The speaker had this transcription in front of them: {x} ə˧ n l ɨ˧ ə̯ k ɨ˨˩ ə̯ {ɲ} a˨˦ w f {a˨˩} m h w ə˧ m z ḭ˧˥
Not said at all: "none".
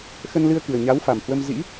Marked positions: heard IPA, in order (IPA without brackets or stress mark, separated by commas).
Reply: x, ɲ, a˨˩